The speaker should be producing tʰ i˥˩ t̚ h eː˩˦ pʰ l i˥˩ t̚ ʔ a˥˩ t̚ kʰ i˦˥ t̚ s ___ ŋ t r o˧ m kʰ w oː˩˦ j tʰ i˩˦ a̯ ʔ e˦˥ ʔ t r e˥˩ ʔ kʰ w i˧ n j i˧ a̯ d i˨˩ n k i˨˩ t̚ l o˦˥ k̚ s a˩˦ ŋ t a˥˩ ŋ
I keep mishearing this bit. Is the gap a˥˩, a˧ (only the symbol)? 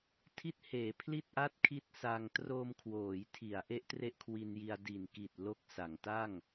a˧